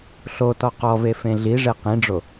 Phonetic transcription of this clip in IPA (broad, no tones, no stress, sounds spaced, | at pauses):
ɬ o t ɔ q ɔ v e f ẽ ɮ i ʐ e q ĩ ɖ͡ʐ o